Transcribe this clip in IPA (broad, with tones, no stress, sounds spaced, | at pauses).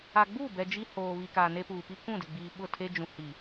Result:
a˨ ɡ͡b uː˦˨ b ɛ˨ d͡ʒ i˦ h oː˨ β i˨ k aː˨ n e˦ p uː˨ p i˦ k ũ˦˨ d ɪ˨ ɡ͡b iː˨ ɓ ʊ˦˨ tʰ e˦ d͡ʒ ũ˨ h i˨